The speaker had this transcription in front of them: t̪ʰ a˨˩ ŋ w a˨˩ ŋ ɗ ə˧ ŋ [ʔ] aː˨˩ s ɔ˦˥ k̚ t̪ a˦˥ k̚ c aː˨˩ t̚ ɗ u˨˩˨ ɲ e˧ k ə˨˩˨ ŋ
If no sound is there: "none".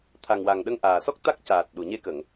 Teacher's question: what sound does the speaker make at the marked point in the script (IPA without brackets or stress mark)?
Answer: ʔ